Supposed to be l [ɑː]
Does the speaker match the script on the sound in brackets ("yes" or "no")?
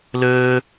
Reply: no